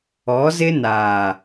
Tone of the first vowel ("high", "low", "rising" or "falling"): rising